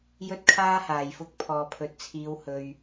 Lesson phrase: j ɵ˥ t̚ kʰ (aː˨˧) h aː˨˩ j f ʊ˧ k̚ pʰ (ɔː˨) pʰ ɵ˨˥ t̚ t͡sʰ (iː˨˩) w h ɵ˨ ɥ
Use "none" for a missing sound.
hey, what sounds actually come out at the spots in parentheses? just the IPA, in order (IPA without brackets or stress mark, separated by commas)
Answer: aː˥, ɔː˨, iː˨˧